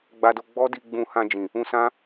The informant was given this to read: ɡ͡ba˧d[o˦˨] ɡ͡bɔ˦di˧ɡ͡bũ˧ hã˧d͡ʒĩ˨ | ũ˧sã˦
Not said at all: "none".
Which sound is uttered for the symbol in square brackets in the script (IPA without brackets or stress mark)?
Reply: o˧